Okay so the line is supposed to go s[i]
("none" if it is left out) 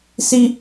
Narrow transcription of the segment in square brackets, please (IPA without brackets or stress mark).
i